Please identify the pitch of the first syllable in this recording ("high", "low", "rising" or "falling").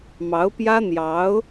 rising